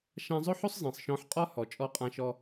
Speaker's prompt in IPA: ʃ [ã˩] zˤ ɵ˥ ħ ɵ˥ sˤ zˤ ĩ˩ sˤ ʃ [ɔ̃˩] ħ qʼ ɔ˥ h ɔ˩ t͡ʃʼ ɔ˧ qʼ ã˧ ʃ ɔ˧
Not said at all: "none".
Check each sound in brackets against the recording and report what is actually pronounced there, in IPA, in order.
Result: ã˧, ɔ̃˧

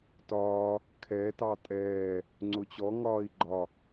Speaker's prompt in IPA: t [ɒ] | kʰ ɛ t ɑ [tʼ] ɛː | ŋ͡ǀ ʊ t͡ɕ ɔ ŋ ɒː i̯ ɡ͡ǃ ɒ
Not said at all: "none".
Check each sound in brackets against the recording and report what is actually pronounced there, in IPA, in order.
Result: ɒː, tʼ

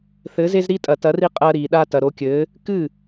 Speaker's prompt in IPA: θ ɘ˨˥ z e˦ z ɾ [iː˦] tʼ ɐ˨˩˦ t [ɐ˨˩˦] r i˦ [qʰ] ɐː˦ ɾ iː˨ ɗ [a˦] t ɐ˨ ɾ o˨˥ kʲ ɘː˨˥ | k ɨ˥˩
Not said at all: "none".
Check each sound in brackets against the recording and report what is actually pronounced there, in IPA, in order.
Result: i˦, ɐ˨˥, qʼ, a˦

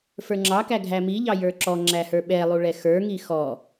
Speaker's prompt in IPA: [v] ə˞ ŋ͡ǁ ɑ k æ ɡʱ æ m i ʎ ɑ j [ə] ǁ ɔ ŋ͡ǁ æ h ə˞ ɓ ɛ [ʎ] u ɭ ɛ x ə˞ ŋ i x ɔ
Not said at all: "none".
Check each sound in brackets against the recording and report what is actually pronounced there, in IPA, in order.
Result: f, ə˞, lˠ

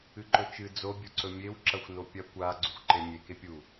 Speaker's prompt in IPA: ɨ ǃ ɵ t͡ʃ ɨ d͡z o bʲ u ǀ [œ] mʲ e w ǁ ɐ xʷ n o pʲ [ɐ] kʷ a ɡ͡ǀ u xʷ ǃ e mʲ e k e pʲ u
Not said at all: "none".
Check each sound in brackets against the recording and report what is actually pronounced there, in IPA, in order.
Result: ɵ, ɐ

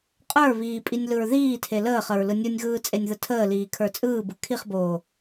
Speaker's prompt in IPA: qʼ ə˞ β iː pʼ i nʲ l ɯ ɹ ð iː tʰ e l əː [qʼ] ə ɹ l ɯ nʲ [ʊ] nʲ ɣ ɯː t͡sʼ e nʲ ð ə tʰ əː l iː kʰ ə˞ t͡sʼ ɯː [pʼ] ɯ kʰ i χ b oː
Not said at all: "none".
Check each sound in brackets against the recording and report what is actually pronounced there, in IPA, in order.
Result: χ, ɯ, b

